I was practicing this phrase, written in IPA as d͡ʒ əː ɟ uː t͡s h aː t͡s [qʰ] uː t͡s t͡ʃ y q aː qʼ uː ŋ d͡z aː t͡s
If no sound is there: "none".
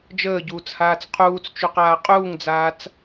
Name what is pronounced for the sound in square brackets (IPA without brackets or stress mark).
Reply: qʰ